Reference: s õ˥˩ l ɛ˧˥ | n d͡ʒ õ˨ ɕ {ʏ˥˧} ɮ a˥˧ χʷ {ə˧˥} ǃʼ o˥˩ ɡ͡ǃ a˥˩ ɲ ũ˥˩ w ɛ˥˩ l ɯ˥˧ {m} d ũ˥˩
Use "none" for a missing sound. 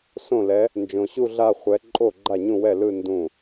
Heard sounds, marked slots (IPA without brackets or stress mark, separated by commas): u˥˧, ɛ˧˥, n